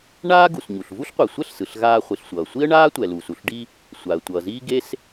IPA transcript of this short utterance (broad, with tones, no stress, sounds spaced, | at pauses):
ɳ aː˥ ɡ u˩ s ɲ u˩ ɬ v u˥ ɬ qʷ e˩ sʷ ɛ˥ ɬ s ɯ˩ ɬ ɣ aː˥ χʷ i˩ ɬ sʷ ʌː˩ sʷ i˥ ə̯ ɳ aː˥ tʷ ɛ˩ l uː˩ s u˩ ɬ ɖ i˥ | sʷ a˩ ə̯ tʷ ʌː˩ z iː˥ ɡ e˥ s